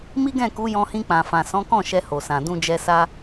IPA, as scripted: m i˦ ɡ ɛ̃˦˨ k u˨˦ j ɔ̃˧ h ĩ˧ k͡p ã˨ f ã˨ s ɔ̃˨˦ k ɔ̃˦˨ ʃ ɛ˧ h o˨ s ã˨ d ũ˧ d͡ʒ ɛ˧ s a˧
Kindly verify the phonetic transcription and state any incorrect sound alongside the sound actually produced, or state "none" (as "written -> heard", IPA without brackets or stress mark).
none